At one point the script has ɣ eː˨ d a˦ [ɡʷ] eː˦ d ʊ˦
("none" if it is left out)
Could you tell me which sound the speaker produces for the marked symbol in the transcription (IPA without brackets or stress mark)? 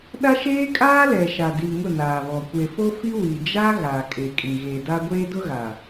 ɡʷ